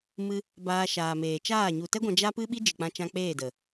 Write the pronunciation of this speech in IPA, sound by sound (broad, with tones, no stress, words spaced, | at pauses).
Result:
mɨ˧ | baː˧ʃaː˨meː˨ t͡ʃaː˦˨ ɲu˨tɛ˦ɡʷã˧ d͡ʒa˦pɨ˦ ɓi˦d͡ʒɨ˨k͡pã˧t͡ʃã˧ k͡peː˦˨də˨